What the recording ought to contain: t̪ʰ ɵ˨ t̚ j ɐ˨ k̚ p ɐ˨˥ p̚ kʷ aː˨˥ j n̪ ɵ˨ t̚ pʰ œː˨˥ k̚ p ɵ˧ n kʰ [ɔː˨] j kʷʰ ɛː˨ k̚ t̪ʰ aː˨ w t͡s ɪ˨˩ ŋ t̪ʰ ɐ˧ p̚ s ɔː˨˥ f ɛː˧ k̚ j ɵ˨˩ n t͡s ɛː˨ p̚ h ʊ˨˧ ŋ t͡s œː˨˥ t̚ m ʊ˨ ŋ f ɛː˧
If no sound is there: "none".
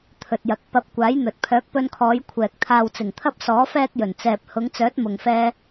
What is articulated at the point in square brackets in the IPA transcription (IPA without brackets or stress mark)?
ɔː˨˧